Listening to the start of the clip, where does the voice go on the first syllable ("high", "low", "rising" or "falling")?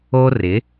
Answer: high